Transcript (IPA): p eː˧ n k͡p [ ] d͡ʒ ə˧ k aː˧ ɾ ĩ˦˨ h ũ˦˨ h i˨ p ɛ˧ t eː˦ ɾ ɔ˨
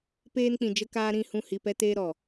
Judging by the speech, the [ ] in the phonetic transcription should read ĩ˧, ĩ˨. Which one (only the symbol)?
ĩ˨